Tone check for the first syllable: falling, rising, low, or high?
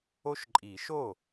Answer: high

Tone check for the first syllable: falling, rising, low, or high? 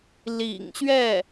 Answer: low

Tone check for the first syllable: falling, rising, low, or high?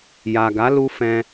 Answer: low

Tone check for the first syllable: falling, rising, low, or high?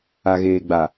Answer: low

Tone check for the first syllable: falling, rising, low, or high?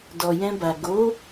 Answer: low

